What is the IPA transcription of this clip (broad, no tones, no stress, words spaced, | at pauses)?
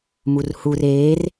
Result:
murhur eːr